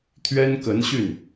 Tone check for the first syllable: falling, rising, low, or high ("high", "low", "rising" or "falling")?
high